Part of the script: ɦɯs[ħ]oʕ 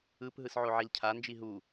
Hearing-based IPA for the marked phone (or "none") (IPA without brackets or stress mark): ʕ